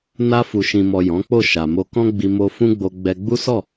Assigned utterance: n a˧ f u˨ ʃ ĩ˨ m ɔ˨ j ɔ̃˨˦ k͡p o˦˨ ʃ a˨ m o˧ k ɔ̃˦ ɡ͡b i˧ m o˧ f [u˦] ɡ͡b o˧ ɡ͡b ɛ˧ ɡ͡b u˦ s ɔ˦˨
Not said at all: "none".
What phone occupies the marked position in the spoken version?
ũ˦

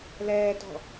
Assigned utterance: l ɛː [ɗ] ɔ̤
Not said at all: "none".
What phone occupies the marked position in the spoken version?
t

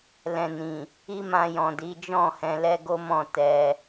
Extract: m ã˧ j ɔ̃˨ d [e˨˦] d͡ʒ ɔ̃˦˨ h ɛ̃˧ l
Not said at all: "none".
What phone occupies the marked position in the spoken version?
i˨˦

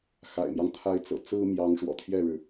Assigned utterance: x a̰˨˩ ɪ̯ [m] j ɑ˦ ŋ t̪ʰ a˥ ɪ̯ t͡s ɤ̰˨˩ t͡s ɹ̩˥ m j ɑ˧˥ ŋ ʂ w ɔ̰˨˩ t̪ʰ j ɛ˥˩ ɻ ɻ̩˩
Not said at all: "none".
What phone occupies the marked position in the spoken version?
m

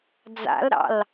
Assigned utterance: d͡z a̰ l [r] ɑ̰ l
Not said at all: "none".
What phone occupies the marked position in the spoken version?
ɾ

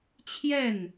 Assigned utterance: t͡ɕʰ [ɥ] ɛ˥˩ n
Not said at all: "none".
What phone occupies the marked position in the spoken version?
j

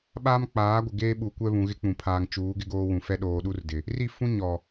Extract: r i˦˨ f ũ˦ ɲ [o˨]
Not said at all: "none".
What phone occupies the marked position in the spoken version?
ɔ˨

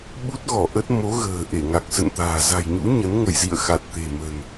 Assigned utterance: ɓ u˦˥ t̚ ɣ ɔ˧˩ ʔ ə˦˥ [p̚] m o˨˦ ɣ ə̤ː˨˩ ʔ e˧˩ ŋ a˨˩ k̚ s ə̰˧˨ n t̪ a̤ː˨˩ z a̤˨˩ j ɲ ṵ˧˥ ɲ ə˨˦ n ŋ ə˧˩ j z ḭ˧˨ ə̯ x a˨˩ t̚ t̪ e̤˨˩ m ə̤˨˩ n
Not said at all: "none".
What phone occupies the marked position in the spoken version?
t̚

